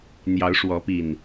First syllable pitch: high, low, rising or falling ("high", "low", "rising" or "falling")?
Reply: rising